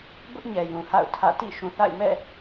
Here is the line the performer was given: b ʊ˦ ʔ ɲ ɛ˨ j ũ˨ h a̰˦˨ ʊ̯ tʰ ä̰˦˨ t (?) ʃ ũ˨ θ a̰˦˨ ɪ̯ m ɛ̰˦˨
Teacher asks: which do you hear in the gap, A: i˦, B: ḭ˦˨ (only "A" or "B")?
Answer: B